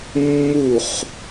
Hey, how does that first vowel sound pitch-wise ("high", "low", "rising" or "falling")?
falling